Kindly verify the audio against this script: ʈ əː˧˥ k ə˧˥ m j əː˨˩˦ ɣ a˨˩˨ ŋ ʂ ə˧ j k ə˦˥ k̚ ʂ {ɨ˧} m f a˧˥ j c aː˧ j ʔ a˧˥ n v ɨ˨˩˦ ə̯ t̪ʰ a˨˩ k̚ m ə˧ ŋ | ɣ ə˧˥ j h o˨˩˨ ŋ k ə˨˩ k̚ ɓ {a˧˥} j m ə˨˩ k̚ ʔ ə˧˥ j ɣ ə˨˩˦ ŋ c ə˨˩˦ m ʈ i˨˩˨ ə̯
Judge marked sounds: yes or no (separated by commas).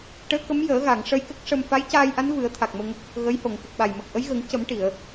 no, no